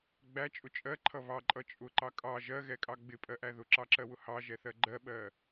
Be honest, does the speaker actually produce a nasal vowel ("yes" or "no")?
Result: no